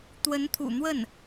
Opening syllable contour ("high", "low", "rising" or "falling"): rising